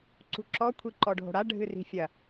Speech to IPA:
ǀṳǁɔ kʷʰiǃɔɖʱo̤ɽa ɖʱɨri̤fʲɐ

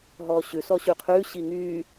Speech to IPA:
ɦɔːɕʉ sɔɕʉqʰʉː ɕiŋyː

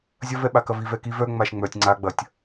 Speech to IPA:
zʲɐvɛɓa kɐvi vɛkiv œ ŋ͡maʃŋ͡mœtʲ ŋ͡ǀaɡ͡bɐtʲ

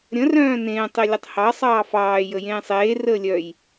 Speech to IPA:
ɾʲə̃ rœ̃ːnẽː tˤelʲətˤhɑ sˤɑːfɑː jəjẽːsˤeː rəːlʲœj

